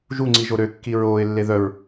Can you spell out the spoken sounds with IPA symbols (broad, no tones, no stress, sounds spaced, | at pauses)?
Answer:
ʒ u ŋ͡ǀ i ʒ o ɾ ø kː i ɹ oː ɪ̯ lː e ð œ ɹ